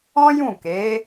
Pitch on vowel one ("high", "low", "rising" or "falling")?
high